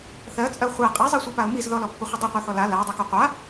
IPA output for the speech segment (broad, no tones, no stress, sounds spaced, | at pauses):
θ ɜ t͡sʼ ɜ χʷ ɛ qʼ ɛ zˤ ɜ sʷ a p a ʊ̯ m i z ð ɔ l ɔ pː ɔ χʷ ə dˤ i qʷ ɜ θ ɔ l a l a ʊ̯ dˤ ɜ k ɔ qʷ a